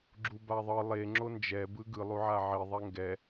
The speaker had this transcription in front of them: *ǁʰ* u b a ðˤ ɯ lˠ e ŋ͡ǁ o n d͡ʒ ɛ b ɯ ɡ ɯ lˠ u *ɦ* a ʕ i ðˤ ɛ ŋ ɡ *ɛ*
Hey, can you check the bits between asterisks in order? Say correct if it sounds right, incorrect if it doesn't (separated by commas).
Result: incorrect, incorrect, correct